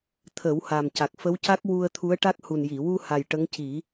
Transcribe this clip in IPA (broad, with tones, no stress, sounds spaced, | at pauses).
t̪ʰ ə˨˩˦ w h a˨˩ m c a˨˩ k̚ f ə˧˥ w c a˦˥ k̚ w u˧ ə̯ t̪ʰ u˧˥ ə̯ ʈ a˦˥ k̚ h u˨˩ n j i˨˩˨ w u˧ h a˨˩ j ʈ ə˧˥ ŋ c i˨˩˦